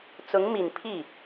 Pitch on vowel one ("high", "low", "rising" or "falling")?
rising